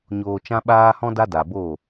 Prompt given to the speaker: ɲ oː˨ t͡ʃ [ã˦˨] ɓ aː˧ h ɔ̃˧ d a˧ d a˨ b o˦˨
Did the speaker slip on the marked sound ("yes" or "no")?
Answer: yes